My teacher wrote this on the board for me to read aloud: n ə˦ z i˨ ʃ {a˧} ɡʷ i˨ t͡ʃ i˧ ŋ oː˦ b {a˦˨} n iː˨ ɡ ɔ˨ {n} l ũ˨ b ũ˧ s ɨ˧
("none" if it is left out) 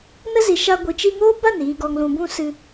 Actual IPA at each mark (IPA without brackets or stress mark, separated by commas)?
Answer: a˧, a˦˨, ŋ